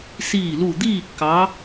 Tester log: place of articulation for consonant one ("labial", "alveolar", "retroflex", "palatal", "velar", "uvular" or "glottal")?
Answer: alveolar